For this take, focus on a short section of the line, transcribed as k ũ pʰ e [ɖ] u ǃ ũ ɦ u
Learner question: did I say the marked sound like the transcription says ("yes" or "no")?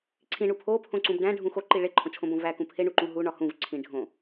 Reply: no